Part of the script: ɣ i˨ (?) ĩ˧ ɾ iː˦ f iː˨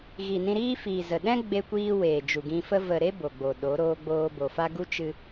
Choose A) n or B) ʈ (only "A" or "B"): A